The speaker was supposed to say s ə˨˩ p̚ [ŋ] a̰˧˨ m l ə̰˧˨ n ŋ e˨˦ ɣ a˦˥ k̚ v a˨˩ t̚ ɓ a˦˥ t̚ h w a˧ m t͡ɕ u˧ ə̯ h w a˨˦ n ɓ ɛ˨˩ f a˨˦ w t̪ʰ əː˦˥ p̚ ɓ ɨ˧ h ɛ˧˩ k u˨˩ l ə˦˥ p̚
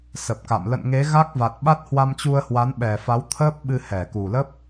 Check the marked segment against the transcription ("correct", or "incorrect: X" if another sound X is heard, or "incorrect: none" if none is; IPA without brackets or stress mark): incorrect: k